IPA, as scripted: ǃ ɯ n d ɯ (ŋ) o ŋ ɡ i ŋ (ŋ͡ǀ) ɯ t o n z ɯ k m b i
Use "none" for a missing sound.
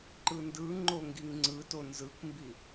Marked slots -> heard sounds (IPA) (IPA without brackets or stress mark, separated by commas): ŋ͡ǃ, ŋ͡ǀ